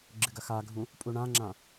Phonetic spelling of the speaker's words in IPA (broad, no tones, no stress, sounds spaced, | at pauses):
ɡ͡ǁ ɨ ɡ ɐ x a ɡʱ ũ | pʼ u ɳ ã ŋ͡ǁ ã